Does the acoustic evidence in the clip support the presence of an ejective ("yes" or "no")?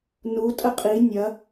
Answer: yes